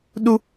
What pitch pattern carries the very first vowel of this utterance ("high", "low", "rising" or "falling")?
high